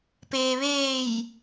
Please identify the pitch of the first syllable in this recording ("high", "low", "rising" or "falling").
low